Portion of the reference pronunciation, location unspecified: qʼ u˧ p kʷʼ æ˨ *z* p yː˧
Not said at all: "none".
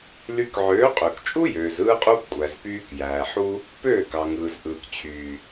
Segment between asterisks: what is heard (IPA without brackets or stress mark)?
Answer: z